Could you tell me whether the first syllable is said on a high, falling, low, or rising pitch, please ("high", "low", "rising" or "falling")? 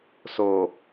low